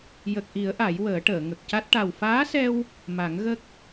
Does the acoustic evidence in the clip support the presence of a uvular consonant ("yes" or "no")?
no